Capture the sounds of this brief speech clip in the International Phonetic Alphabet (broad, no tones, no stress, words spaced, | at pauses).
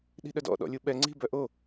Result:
ɗi̤ɗœdɔ̰ ɗɔ̰lʲuɓɛ ŋ͡ǀi̤ bœʔo